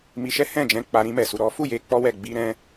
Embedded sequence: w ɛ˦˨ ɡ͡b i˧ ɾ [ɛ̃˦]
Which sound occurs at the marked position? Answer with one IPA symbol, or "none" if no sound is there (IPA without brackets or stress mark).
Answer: ɛ̃˦